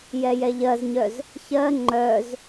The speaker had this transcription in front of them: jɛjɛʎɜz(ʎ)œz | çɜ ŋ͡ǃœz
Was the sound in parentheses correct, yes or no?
no